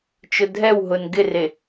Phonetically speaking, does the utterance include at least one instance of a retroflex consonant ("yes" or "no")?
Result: no